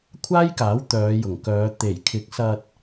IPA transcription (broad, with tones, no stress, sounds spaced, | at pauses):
kʷʰ aː˥ j k aː˨˥ w t̪ œː˨˧ j ʊ˨˩ ŋ k œː˨˧ t̪ e˨˩ j kʰ ɪ˨˥ k̚ s ɐ˧ t̚